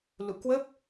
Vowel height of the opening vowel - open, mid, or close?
close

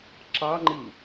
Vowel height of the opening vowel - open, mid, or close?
open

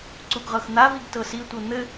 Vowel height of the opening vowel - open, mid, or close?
close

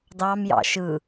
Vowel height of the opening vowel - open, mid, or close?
open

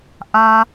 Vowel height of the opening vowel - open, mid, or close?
open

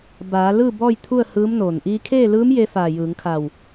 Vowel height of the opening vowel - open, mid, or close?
open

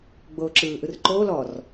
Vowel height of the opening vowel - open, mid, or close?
mid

